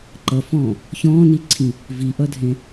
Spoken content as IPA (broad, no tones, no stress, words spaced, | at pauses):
ǃʌfɔ̃ː | çɔ̃ːniǀʰĩ | viʔʌdʱẽ